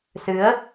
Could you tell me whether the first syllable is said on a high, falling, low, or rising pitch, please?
rising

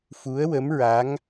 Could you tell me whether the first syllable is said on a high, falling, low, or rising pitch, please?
rising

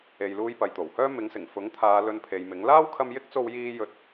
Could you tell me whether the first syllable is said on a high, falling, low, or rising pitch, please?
low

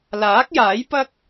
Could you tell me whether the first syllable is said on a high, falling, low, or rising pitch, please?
rising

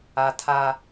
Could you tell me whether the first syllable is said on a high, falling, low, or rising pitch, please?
high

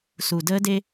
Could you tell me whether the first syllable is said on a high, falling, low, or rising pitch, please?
low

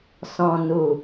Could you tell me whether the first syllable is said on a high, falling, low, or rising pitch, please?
low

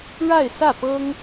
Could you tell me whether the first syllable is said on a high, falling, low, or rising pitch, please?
falling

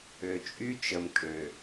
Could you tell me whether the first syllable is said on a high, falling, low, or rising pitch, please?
low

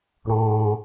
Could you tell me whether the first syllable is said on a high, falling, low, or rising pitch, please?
high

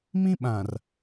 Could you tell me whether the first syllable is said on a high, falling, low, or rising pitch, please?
high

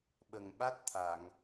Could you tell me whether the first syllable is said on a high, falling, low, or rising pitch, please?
low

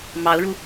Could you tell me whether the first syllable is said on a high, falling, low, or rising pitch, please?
rising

